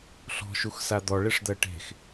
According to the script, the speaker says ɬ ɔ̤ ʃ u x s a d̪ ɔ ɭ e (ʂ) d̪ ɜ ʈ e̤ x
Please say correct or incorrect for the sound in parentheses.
correct